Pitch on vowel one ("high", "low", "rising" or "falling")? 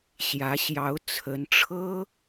rising